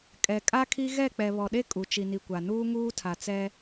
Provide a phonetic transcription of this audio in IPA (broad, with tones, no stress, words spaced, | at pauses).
kʼɛ˨kʼa˦kʰi˦ ɣɛ˦˨ k͡pɛ˨βɔ˨ɗe˦ kʼu˨t͡ʃi˨ni˨kʷa˨ nuː˦ŋuː˦tʰa˨t͡sɛ˦